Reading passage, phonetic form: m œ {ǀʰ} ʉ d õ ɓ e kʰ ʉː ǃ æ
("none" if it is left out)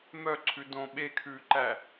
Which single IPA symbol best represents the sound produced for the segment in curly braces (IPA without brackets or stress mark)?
ǀʰ